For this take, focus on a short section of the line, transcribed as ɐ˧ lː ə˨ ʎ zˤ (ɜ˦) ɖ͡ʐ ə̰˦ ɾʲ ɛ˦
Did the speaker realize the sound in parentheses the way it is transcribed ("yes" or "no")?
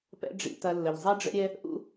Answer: no